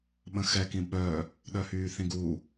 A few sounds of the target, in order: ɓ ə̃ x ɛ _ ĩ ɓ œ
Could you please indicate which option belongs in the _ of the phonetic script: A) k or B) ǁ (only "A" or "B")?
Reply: A